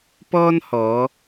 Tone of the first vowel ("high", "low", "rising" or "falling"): high